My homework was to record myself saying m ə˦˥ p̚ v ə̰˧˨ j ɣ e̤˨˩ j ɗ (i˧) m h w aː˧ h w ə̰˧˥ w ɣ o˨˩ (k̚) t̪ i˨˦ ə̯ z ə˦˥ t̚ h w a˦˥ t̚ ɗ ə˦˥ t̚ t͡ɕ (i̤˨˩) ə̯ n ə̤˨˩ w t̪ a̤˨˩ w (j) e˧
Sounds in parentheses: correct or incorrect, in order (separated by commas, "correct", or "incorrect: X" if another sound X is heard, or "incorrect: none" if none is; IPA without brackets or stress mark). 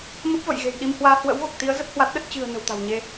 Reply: correct, correct, incorrect: ɨ̤˨˩, incorrect: ɲ